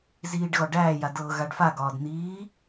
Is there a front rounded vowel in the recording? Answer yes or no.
no